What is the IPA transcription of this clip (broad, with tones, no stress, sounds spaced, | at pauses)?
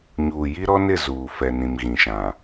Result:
ɲ uː˨ j i˦ ɾ ɔ˦ n ɪ˦˨ z uː˨ f ɛ˨ n ĩ˨ m ɣ ĩ˨ ʃ ã˨